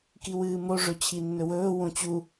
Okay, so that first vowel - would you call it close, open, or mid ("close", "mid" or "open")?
close